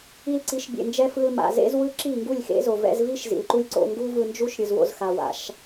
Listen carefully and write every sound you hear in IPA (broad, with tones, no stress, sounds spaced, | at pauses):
i˧ l ǀ i˨˦ ʃ bʲ ḛ˨ n d͡ʒ ɛ˧ f ɯ˧ l m a̰˨ z ḛ˦ z w ɯ˦ ǁ i˦˨ ŋ ɡ u˦˨ lʲ x ḛ˦ z o˨ v ɛ̰˧ z v i˦ ʃ z ḭ˨ l ǃ u˦ lʲ ǀ o̰˧ ŋ ɡ u˦ v ɯ˧ n d͡ʒ u˦ ʃ ɾʲ ɯ˨ z w o̰˧ z x a˨ w a̰˨˦ ʃ